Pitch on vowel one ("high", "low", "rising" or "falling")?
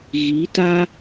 rising